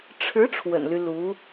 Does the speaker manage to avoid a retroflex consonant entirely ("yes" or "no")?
no